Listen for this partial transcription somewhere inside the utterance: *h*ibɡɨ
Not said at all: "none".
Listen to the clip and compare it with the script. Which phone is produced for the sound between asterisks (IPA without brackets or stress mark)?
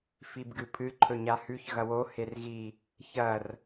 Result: f